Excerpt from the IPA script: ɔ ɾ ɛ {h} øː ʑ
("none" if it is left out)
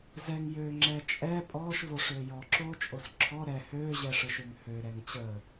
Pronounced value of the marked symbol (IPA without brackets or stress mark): h